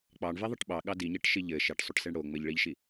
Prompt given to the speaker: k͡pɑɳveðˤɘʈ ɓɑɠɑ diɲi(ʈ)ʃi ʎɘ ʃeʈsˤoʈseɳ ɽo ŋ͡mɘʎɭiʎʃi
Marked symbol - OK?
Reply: yes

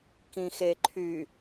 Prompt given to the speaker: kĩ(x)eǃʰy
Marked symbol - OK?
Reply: yes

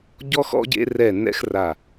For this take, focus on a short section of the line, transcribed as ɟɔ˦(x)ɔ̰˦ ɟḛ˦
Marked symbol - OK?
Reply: yes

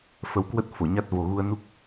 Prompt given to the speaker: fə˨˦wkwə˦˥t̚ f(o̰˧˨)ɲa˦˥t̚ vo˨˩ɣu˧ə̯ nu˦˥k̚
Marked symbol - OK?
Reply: no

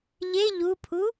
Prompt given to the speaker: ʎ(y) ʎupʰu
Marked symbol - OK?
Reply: no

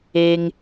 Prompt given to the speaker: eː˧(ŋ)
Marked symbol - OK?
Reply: yes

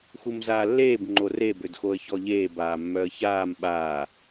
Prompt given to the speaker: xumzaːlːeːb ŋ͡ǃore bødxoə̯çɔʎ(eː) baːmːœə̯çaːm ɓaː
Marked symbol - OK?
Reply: yes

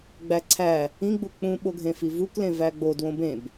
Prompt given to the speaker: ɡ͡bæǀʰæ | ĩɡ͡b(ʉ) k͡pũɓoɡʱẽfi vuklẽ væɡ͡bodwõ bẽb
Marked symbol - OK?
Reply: no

